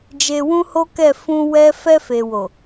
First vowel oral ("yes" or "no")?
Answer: yes